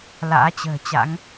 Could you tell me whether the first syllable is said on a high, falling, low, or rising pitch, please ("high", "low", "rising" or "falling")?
rising